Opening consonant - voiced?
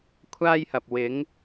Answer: no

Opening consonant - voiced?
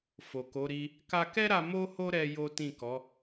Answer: no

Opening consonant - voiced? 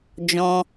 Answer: yes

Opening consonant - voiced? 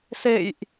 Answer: no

